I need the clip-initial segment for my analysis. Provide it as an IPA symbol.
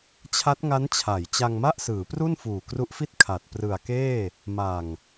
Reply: t͡ɕʰ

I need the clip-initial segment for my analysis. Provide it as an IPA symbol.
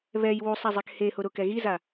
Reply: β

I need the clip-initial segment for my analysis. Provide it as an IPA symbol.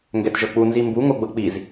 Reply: ŋ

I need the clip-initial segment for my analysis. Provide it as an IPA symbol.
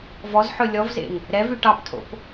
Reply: v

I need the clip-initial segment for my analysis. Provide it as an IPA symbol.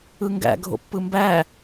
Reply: ɯ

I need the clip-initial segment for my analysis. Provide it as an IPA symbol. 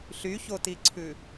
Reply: ɬ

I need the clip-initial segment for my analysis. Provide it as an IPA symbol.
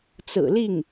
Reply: t͡s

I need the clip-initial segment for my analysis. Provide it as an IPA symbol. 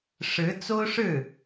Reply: ʂ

